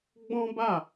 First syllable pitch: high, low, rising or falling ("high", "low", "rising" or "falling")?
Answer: high